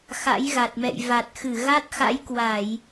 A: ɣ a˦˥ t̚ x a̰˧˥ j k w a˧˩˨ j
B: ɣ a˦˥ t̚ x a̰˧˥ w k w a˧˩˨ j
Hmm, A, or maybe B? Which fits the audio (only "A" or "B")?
A